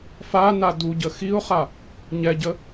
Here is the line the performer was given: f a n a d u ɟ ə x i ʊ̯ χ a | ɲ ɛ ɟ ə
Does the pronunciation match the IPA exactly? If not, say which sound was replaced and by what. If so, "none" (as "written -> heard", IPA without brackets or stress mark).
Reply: none